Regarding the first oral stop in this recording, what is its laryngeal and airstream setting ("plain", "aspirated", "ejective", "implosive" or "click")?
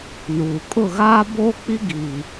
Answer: ejective